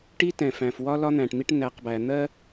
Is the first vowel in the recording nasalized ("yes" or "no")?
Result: no